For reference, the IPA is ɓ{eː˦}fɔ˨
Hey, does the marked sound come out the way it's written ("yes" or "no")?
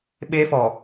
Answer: yes